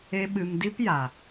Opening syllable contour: high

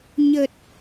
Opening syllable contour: low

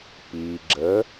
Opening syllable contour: low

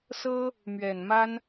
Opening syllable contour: high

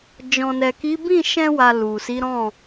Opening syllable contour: low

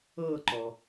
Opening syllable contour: falling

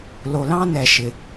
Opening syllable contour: low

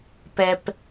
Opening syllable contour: low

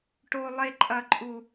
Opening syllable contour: high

